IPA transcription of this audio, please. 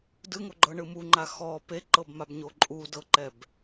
d ɯ ŋ o ɡ͡ǃ ɤ ɳ ɯ m u ŋ͡ǃ a x ɔ p e ǃ ɤ b m a b ɲ o ǃʼ u d ɤ ǃ ɛ b

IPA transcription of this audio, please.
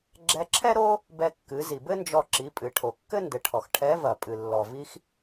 ɡ͡ǁ ɛ˧ ǁʰ ɛ˥ ɾ o˥ | b ɛ˧ kː ɨ˩˧ z i˩ b ɘ˥ n d͡ʒ ɔ˧ ǁ i˩˧ pʼ ɨ˩ ʈʰ o˩ kː ɘ˥ n d ɘ˩˧ ʈʰ ɔ˩ x ʈʰ ɛ˧˥ v ɐ˩ pʼ ɨ˩ lː ɔ˩ v i˧ x

